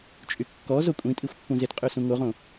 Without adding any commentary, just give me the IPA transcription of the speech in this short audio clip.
t͡ʃʼ y kː ɔ z o kʷʼ ĩ tʼ i xʷ pː ũ z e t qʼ ø s ũ ŋ o ʁ õ

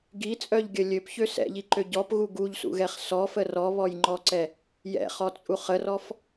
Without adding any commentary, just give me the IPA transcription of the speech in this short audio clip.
ɡ i t͡sʼ œ ʎ ɡʲ ə lʲ ø p ç ø s ɛ̰ ʎ i ǃ ø ɟ ɔ p ɣ u ɡ u ʎ s ṵ ɣ ɛ χ s ɔ f ə r ɔ β ɔ j ŋ͡ǃ ɔ ǀ ɛ | j ɛ̰ χ ɔ t͡sʼ u χ ə r ɔ f

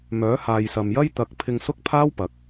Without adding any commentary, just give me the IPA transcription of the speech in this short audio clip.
m œː˨˥ h aː˨ j s ɐ˨ m j ɐ˥ j t̪ ɐ˨ k̚ pʰ ɪ˧ ŋ s ʊ˥ k̚ pʰ aː˥ w p ɐ˨˥ k̚

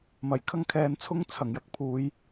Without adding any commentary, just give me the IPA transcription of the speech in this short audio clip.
m ɐ˨˩ j kʰ ɐ˥ ŋ kʰ ɛː˧ n t͡sʰ ʊ˥ ŋ t͡sʰ ɐ˨˩ ŋ j ɐ˧ k̚ pʰ uː˨˧ j

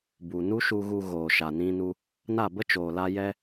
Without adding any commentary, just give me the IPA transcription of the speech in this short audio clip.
b u˨ n u˦ ʃ u˧ ɣ u˧ ɣ oː˨ ʃ a˨ n ĩ˧ n u˧ | n a˦˨ b ə˦ t͡ʃ oː˨ l a˧ j ɛ˧

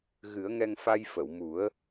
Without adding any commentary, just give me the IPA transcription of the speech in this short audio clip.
ɣ ɨ˨˩˦ ə̯ ŋ ɛ˧ ŋ f a˧ j f ə˨˩˨ w m u˨˩˦ ə̯

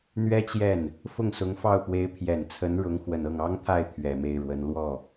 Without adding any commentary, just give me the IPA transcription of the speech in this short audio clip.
n̪ ɥ ɛ˥ t͡ɕ j ɛ˥˩ n | f ʊ˥˩ ŋ s ʊ˧˥ ŋ f ɑ˥˩ ʊ̯ p w e˧˥ ɪ̯ pʰ j ɛ˨˩ n t͡sʰ ə˧˥ n ɻ ʊ˧˥ ŋ x w ə˨˩ n ɤ˥˩ ŋ ɑ˥ ŋ t̪ʰ a˥˩ ɪ̯ t̪ʰ ɥ ɛ˨˩ m e˥˩ ɪ̯ ɻ w ə˧˥ n l w ɔ˥˩

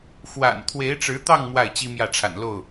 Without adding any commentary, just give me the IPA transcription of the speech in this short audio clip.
x w a̰˨˩ n t̪ʰ w e˧˥ ɪ̯ ʈ͡ʂ ɻ̩˧˥ t̪ ɑ˥˧ ŋ m w a˥˩ ɪ̯ t͡ɕ i˥ m j ä˥˩ ʈ͡ʂʰ a̰˨˩ n l o˥˩ ʊ̯

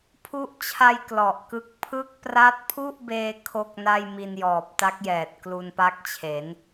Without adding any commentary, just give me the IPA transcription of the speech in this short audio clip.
pʰ u˦˥ ʔ t͡ɕʰ a˧ j k l ɔ˨˩ ʔ k ɯ˦˥ k̚ pʰ ɯ˦˥ k̚ p r a˦˥ t̚ pʰ u˥˩ ʔ b eː˧ kʰ o˥˩ k̚ n a˥˩ j m i˧ n j ɔː˨˩ p̚ t a˦˥ k̚ j ɛː˨˩ t̚ k l u˧ n p a˦˥ k̚ t͡ɕʰ e˩˦ n

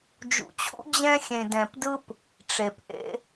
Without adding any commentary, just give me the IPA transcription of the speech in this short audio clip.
d͡ʒ ṵ˨ t͡ɕʰ ṵ˦ d͡ʑ ɛ̃˦ xʲ ẽ˨ d ɛ̃˨ p d ɯ˦ p | ʈ͡ʂ e˨ p ʔ ḛ˦

